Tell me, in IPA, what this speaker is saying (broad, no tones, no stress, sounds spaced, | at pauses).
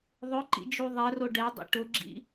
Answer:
ðˤ ʊ ǃ ḭ d͡ʒ u ðˤ ɛ r o ɖ ɛ dˤ ḭ ʈ ʊ ɡ͡ǁ ḭ